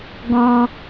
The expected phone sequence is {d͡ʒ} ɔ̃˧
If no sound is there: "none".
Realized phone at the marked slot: ɡ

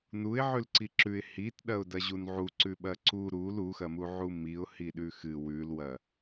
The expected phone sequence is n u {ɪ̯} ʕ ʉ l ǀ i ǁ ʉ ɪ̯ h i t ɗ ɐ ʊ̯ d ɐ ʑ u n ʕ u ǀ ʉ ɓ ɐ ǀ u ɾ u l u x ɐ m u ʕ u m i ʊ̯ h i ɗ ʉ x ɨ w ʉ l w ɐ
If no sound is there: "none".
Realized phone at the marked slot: ɪ̯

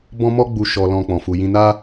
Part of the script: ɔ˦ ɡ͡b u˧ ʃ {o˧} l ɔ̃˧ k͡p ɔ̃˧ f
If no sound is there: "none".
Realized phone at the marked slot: ɔ˧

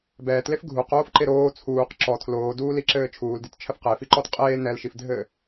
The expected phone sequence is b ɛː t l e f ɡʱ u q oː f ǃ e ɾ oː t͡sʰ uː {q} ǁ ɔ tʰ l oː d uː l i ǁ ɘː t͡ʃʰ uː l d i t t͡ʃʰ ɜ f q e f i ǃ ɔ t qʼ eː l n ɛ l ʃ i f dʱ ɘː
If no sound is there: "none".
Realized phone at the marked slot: q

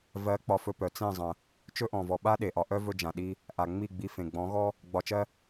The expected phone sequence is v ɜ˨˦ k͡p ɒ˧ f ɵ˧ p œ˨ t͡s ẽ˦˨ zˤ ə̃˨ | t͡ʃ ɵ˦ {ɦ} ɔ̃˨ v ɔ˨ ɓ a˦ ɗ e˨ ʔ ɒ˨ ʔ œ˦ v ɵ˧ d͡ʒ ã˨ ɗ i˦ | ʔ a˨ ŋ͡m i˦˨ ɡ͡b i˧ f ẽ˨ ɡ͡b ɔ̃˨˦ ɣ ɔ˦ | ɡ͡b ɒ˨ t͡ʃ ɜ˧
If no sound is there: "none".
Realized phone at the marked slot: ʔ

